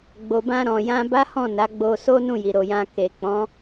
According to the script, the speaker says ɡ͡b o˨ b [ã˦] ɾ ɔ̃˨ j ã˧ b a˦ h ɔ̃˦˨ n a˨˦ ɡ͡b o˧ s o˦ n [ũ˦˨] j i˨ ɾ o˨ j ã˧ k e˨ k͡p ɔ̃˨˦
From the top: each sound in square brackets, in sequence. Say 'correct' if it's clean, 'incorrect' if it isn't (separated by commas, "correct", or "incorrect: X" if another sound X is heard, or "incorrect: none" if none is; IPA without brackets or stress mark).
incorrect: ã˧, correct